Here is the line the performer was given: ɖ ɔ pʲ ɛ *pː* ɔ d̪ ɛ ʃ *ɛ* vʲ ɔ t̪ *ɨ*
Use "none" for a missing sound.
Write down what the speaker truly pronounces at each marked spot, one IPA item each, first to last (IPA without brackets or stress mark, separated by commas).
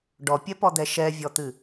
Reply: p, ɛ, ɨ